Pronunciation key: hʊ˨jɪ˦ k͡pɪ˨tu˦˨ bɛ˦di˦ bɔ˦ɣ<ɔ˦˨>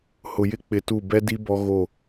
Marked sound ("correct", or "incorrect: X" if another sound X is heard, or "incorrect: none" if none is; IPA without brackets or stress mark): incorrect: o˦˨